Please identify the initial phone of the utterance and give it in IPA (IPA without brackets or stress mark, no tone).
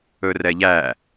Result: ɵ